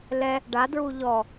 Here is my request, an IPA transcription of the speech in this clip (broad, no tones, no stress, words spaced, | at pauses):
lɛ | ɖadɹu ʎɔ